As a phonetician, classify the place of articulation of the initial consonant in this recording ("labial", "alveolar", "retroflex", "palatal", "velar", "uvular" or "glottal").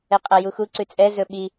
uvular